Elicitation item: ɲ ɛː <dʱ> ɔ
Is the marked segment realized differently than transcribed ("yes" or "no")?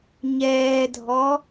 no